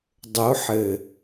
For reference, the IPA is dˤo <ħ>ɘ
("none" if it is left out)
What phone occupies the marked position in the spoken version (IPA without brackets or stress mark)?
ħ